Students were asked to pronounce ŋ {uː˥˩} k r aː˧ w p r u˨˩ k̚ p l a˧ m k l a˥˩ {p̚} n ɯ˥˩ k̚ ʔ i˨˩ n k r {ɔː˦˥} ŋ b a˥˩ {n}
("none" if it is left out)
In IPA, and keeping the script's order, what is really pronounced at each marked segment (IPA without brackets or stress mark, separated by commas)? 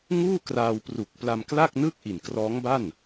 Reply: uː˥˩, k̚, ɔː˦˥, n